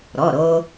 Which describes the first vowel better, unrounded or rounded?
rounded